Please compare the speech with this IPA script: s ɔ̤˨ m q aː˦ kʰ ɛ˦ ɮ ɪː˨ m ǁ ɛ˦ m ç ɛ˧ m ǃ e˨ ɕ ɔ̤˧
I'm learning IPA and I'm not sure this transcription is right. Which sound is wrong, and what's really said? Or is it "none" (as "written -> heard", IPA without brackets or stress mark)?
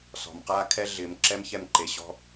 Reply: none